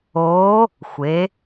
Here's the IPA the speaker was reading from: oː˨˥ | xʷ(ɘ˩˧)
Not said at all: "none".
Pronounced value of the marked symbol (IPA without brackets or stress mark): e˩˧